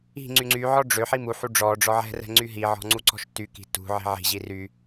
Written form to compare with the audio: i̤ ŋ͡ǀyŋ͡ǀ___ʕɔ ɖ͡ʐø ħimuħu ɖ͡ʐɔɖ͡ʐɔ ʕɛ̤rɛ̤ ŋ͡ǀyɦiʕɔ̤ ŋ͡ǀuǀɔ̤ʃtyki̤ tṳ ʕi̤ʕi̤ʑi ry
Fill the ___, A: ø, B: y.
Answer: B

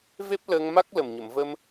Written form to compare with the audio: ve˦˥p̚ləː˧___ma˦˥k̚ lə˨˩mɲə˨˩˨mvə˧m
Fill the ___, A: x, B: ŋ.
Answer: B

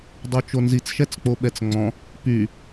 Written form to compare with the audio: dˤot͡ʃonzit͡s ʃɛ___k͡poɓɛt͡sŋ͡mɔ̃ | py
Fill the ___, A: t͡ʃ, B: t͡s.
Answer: B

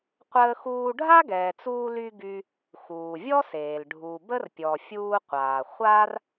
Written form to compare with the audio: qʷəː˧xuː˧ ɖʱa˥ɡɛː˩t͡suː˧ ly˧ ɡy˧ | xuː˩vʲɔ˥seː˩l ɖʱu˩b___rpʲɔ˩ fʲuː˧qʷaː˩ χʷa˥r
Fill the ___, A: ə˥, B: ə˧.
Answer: A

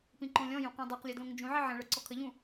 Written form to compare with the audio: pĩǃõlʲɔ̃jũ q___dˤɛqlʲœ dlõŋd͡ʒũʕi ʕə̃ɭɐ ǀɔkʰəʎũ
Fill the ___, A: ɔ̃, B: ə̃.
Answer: A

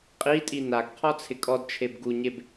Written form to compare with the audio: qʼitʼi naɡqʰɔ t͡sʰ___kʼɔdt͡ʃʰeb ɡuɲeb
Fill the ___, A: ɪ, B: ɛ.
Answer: A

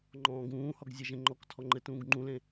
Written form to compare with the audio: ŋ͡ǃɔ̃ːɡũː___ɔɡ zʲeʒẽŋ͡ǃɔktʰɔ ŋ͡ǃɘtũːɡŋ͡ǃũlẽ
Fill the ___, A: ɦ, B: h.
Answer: B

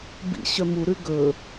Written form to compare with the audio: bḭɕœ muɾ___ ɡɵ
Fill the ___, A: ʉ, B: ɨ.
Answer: A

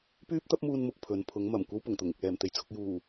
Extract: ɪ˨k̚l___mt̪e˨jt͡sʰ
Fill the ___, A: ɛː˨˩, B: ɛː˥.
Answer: A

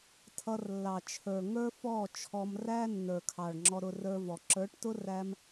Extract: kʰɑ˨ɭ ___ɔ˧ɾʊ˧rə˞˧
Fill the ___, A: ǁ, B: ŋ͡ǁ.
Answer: B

